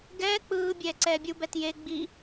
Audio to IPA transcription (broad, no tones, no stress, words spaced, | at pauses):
ɡɛː k͡pɯː bʲɛːǀɛːbʲu bɛtje ɡ͡bi